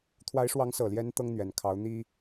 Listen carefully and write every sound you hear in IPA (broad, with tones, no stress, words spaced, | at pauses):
t̪ʰwa˧˥ɪ̯ʂwɑ˧˥ŋsɤ˨˩ljɛ˧˥n t̪ɤ˥ŋn̪ɥɛ˨˩n kʰɑ˧˥ʊ̯n̪i˥